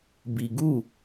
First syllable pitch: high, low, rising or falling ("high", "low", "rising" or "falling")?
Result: low